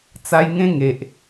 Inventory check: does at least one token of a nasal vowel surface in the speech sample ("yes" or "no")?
yes